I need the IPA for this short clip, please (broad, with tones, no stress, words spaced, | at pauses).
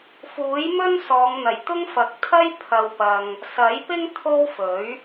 fuː˨˥jmɵ˥n sɔː˨˧ŋn̪ɐ˨˩j t̪ʊ˥ŋfɐ˨˥k̚ t̪ʰɐ˥j pʰɐ˧wpɐ˧ŋ | sɐ˨˥jpɪ˥ŋ t̪ʰo˥wfɵ˨˥ɥ